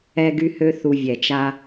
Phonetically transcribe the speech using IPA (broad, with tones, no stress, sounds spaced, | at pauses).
ɛ˦ ɡ y˦ h ø˦ θ u˧ vʲ ɛ˨ t͡ʃ a˦